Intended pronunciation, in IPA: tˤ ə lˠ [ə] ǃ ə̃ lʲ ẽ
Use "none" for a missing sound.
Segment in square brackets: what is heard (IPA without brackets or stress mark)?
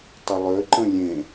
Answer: ø